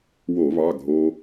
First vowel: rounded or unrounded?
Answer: rounded